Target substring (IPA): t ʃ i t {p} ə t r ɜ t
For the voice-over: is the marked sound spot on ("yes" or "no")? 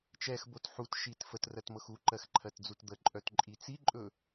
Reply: no